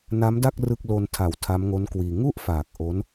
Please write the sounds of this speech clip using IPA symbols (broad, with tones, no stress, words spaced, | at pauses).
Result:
na˦˥mda˥˩k̚ rɯ˥˩k̚ lo˧ntʰa˨˩w tʰa˦˥m ŋo˦˥nkwiː˧ ŋu˥˩ʔfaː˨˩k̚ ʔo˦˥n